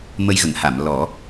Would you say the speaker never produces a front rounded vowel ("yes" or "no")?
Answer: yes